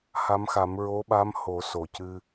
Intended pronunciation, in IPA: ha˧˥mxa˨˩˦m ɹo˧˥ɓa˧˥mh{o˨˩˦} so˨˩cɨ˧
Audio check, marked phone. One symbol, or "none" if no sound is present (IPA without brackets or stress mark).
o˨˩˦